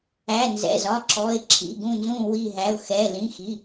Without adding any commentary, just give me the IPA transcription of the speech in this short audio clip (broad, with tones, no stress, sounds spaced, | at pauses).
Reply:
æ˩˧˩ n z ɛ̰˩˧˩ z ɒ˩˧˩ ǁ ɔ˩˧˩ ɪ̯ ǁʰ ḭ˩˧˩ ɡ ũ˧˩ n z ũ˧˩ w i˧˩ ɦ æ˩˧˩ ʊ̯ x ɛ˩˧˩ l ĩ˩˧˩ x i˩˧˩